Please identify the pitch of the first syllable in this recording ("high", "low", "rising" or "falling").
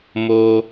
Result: high